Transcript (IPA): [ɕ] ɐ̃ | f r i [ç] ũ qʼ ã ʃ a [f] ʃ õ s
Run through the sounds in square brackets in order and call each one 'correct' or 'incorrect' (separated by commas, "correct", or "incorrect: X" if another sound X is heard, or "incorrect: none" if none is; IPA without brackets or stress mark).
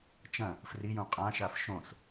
incorrect: t͡ʃ, incorrect: j, correct